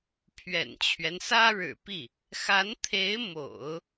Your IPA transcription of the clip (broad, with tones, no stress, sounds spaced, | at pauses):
pʰ ɥ ɛ̰˨˩ n t͡ɕʰ ɥ ɛ˦ n s ä˥ ɻ ɻ̩˨˩ p i˥˩ | x a˧˥ n t̪ʰ e˧˥ ɪ̯ m o̰˨˩˦ ʊ̯